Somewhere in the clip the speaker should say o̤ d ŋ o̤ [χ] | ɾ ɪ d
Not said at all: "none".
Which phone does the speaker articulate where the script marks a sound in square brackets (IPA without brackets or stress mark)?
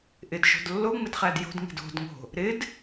none